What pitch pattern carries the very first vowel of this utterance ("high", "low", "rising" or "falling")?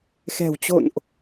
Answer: low